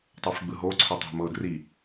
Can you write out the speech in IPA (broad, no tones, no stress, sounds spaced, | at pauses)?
tˤ ɤ f ɡ͡b ɯ ɦ o ǀʰ o tˤ ɛ̤ m ɤ ʊ̯ d r i